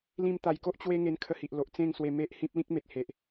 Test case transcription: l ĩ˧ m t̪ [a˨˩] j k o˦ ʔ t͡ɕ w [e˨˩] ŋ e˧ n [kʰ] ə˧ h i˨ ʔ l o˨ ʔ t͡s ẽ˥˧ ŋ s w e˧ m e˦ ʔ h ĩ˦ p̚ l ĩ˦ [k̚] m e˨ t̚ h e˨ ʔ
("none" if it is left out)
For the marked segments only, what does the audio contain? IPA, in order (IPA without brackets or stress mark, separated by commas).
a˨˩, e˦, kʰ, k̚